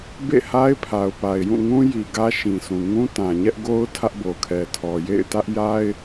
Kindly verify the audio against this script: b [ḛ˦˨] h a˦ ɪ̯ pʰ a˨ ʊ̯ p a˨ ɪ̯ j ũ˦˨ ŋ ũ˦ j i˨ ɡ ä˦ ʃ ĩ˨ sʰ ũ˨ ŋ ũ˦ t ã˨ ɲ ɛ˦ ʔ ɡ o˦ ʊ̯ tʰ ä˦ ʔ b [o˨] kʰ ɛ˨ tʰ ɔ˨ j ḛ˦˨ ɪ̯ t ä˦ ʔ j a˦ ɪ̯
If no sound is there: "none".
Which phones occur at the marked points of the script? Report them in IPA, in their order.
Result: ḛ˦˨, o˨

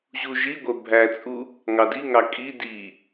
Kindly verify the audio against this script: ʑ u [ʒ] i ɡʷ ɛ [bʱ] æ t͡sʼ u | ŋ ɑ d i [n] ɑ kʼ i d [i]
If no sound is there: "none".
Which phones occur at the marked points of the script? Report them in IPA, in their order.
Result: ʒ, bʱ, ŋ, i

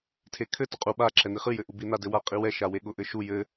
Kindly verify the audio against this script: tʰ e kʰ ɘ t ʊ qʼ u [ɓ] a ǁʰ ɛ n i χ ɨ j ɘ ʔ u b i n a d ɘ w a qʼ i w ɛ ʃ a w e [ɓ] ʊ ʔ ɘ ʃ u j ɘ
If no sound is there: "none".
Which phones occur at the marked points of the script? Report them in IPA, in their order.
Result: ɓ, ɠ

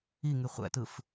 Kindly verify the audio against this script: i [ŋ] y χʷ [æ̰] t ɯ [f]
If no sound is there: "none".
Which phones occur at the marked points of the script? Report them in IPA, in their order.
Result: ŋ, æ̰, f

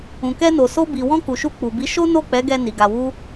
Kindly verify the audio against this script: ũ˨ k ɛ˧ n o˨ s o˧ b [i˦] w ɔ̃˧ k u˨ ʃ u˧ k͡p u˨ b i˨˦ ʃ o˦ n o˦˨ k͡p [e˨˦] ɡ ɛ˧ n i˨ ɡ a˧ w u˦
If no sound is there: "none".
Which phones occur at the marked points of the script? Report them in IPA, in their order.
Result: i˨, ɛ˨˦

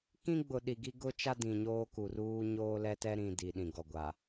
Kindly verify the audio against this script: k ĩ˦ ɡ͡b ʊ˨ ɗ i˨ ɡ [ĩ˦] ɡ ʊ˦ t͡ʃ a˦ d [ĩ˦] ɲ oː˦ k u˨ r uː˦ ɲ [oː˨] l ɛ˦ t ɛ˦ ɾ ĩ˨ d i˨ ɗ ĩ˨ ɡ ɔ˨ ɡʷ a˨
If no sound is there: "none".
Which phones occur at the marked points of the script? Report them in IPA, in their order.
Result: i˦, ĩ˨, oː˦

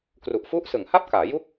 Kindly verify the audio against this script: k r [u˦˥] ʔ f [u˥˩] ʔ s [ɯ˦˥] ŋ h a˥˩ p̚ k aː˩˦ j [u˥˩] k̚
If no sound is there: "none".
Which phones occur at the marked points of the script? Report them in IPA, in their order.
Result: u˨˩, u˦˥, ɯ˩˦, u˥˩

